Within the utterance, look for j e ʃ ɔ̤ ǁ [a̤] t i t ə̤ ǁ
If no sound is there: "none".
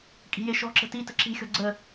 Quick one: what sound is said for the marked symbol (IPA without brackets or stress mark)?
ə̤